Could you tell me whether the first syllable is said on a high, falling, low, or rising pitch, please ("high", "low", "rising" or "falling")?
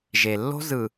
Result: low